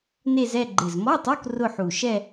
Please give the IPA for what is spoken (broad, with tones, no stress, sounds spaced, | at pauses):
n e˥˧ z ɛ˥˧ ɡ͡ǃ ɪ˨˩ z m ɔ˧˥˧ tˤ o˧˥˧ k r ʊ˥˧ ħ u˨˩ ʃ ɛ˥˧